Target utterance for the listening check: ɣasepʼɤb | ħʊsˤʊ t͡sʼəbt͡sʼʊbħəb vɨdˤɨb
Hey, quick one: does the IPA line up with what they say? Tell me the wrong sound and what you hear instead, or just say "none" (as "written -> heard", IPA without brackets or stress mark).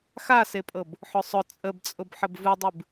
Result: ɣ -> x